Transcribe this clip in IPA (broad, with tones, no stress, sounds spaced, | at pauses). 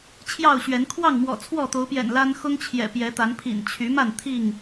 t͡ɕʰ j ɑ˥˨ ʊ̯ ɕ ɥ ɛ˨˦ n kʰ w ɑ˥˨ ŋ m w ɔ̰˨˩ t͡sʰ w ɔ˥˨ t̪ o˨˦ ʊ̯ p j ɛ̰˨˩ n l a˦ n x ʊ˦ ŋ t͡ɕʰ j ɛ̰˨˩ p j ɛ˨˦ t̪ a˨˦ n pʰ ḭ˨˩ n t͡ɕʰ y˨˦ m a˥˨ n t̪ʰ i˥˨ ŋ